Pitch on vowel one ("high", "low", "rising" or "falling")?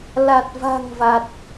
low